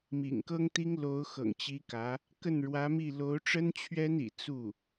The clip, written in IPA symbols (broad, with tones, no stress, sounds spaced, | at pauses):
m ḭ˨˩ ŋ k ɤ˥ ŋ t̪ i˥ ŋ l o˧˥ ʊ̯ x ɤ̰˨˩ ŋ t͡ɕ i˧˥ k ä˧˥ | k ə˥˩ n ɻ w ä˧˥ m i˥˩ l o˧˥ ʊ̯ ʈ͡ʂ ə˥ n t͡ɕʰ ɥ ɛ˥ n ḭ˨˩ t͡s u˥˩